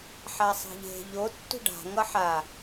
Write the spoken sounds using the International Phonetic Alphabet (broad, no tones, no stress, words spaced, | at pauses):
ħasˤi̤ʎe̤ ʎo tːṳɖa̤ ŋʌħa